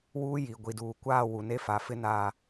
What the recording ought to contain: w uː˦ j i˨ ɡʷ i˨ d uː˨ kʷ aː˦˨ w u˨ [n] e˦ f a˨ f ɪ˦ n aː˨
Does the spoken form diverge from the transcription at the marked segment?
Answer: no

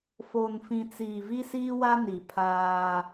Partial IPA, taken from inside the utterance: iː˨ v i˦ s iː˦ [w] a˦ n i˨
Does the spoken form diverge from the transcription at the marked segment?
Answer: no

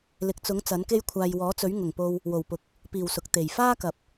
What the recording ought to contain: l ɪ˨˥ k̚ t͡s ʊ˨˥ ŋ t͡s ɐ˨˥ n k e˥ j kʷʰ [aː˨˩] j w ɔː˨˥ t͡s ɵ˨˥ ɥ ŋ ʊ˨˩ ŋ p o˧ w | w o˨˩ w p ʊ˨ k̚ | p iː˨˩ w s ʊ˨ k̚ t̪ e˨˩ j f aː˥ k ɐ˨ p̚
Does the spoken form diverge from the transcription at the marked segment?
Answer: yes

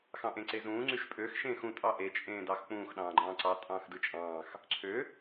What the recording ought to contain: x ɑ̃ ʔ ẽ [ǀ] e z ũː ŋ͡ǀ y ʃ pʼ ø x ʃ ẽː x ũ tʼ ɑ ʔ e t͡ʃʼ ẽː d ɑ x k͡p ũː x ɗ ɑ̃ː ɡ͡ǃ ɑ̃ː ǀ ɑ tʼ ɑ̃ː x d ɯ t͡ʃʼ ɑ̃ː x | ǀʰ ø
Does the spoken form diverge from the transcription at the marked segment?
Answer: no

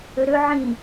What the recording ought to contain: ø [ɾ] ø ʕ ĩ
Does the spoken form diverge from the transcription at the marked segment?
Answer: no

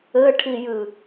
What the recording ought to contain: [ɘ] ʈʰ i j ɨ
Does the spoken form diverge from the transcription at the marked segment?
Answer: no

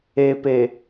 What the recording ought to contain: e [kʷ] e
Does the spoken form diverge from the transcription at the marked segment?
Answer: yes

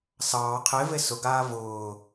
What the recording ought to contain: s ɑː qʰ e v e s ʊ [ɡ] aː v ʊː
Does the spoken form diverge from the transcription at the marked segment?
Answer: no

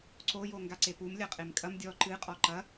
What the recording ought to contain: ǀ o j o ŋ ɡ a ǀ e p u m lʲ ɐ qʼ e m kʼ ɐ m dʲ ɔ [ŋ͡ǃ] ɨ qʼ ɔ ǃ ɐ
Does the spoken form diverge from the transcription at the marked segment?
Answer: yes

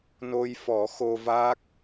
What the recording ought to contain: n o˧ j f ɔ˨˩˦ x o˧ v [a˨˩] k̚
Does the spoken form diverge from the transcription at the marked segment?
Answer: yes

